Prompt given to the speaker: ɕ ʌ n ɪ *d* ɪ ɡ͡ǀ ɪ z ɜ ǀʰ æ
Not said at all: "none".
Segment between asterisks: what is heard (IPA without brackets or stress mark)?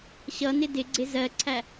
d